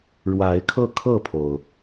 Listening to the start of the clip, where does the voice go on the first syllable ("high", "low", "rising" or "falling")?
rising